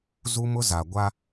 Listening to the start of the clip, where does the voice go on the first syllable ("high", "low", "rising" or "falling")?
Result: high